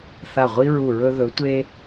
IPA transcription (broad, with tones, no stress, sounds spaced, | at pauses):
θ a˦˨ ʁʷ i˥ ɹ u˦˨ ɹ ɵ˥ ð ɵ˧˥ tʷ e˥